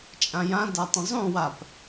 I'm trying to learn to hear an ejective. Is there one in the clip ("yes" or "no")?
yes